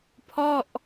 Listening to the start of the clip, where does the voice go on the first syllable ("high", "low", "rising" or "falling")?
falling